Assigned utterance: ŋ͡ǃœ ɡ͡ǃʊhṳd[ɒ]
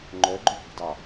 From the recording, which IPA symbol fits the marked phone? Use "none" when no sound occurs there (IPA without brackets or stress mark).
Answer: ɑ